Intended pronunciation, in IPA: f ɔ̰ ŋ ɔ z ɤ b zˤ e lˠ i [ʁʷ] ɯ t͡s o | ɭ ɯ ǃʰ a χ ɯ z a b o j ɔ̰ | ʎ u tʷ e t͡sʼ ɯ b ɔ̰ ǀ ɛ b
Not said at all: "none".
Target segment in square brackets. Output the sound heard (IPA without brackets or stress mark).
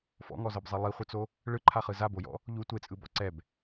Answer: χʷ